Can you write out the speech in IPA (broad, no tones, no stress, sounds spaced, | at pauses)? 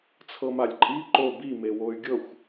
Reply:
t͡sʰ ɤ m a lʲ ǃʼ i ǃ o b i m e w o y̯ ɡʲ ɤ xʷ